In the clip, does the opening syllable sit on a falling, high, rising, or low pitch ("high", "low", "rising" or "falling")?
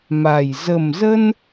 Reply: low